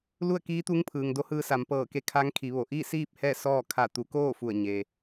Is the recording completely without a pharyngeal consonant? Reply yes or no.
yes